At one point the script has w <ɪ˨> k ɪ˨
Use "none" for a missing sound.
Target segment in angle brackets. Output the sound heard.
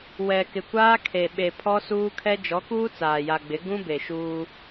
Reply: ɛ˨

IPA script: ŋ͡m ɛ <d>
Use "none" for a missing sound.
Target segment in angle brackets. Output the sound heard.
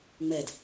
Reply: d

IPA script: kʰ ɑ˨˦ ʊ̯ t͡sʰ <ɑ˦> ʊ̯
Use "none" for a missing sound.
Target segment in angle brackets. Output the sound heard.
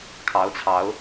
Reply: ɑ˨˦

